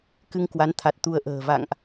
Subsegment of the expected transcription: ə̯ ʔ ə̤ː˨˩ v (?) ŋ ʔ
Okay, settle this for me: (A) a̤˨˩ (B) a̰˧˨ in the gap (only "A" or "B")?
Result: B